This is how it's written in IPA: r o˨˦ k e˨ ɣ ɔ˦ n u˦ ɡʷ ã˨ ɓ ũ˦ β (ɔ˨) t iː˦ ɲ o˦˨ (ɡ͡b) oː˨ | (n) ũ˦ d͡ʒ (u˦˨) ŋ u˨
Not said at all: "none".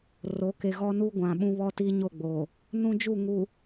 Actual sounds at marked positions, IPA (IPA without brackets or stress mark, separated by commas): ɔ˦, ɡ͡b, n, u˦˨